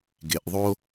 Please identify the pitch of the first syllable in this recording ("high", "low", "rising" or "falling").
low